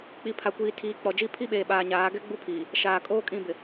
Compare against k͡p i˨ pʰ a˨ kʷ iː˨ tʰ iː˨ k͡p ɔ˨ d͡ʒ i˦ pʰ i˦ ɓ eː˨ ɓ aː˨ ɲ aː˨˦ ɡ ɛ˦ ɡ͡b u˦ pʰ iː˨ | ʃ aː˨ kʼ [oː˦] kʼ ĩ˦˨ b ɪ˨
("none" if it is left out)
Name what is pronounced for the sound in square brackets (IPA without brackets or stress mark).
oː˦